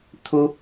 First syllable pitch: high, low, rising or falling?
high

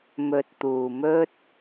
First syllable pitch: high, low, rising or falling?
low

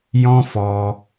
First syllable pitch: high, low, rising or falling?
high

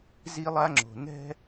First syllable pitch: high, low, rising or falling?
high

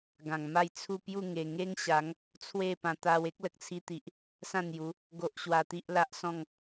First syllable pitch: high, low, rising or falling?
low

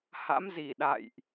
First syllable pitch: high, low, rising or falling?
rising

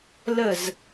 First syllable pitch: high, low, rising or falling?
falling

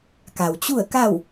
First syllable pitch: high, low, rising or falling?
low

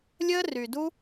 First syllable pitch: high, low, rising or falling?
high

